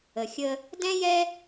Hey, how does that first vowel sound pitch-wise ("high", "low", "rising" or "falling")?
low